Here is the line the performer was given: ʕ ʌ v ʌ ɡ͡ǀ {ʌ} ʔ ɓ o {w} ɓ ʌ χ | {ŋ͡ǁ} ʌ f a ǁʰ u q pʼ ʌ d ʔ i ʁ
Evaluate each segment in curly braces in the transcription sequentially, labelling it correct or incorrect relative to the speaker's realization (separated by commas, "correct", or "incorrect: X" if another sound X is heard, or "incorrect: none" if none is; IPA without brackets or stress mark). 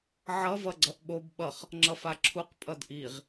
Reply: correct, incorrect: b, correct